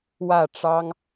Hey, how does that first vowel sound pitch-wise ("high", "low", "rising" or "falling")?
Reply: falling